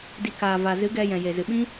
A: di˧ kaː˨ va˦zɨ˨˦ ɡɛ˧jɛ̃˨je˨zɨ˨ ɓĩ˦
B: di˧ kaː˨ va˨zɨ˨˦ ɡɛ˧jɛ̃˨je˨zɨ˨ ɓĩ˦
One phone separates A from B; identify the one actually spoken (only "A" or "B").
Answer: B